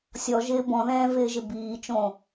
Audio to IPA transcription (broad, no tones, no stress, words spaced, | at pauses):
sʲɔʒɪː bɔ̃ðɛ̃ːvɪːʒɪ biːt͡ʃõ